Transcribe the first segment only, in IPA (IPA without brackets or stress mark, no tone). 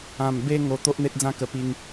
ã